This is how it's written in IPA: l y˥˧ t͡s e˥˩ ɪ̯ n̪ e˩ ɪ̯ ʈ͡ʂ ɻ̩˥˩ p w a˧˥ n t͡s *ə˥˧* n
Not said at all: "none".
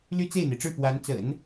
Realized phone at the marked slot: ə̰˨˩˦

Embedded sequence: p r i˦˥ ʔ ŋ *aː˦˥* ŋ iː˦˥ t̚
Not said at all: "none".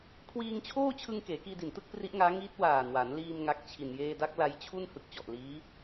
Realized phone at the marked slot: aː˦˥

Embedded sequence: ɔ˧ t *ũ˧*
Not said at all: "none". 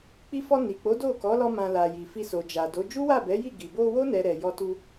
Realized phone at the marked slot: u˧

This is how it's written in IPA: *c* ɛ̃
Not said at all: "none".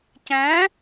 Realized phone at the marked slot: c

